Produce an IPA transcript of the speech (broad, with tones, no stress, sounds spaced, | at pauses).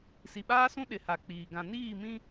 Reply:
s i˨ ɓ aː˦ s ũ˦ ɗ ɪ˨˦ h a˨ k͡p iː˨ ɡ ã˨ n iː˦˨ m ĩ˦